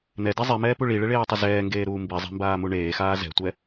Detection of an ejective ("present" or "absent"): absent